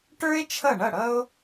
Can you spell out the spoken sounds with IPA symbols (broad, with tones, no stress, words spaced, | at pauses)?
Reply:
ʈə˞˥e̯ t͡ʃʰʌ˥˩ɳʌ˥˩ɽʌ˥o̯